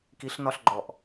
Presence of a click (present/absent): present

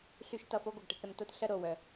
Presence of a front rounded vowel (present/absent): present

